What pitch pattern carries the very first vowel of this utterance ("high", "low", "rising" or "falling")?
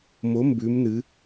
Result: rising